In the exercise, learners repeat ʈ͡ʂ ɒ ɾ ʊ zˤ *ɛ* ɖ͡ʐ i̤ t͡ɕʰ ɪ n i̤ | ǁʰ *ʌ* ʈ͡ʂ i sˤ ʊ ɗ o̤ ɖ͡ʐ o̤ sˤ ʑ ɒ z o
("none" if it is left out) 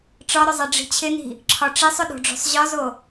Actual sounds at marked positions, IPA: ɛ, ɒ

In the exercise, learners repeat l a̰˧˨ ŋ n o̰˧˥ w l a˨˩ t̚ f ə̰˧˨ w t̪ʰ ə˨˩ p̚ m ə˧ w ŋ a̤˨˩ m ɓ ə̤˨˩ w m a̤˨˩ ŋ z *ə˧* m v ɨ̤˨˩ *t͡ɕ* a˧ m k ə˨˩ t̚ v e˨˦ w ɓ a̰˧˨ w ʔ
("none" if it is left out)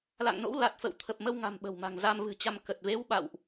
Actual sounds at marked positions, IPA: a˧, t͡ɕ

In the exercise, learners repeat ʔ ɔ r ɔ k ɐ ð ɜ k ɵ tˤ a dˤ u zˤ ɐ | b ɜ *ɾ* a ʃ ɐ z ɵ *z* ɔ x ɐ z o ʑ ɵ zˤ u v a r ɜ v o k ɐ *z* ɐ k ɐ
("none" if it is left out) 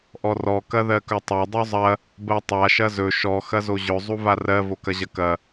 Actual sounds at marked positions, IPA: tˤ, ʃ, ʑ

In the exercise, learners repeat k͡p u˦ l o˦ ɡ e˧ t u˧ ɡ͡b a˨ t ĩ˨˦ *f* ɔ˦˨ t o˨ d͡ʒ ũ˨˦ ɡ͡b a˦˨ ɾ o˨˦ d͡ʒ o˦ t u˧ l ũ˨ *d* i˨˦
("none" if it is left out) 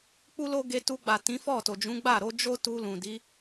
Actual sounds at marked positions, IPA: f, d

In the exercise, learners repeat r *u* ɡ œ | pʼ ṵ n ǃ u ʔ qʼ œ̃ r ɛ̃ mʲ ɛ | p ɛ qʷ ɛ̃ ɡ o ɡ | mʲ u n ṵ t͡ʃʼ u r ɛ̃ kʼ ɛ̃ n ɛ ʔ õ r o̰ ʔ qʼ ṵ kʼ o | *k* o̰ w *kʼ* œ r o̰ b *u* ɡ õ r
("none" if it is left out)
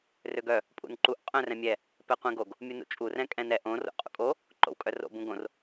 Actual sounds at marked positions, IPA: ø, ǃ, kʼ, ũ

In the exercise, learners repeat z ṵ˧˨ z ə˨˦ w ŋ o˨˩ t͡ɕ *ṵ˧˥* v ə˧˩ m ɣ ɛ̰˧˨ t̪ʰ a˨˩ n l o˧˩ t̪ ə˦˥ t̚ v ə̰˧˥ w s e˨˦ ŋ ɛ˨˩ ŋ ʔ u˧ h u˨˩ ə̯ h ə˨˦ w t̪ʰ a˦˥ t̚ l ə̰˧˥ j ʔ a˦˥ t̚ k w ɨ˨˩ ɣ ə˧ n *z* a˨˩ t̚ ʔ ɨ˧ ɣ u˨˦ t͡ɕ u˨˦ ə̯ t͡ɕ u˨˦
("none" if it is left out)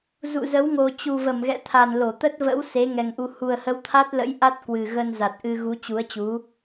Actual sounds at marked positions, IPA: u˨˩, z

